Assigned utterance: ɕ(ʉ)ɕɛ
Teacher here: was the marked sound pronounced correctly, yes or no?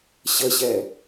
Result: no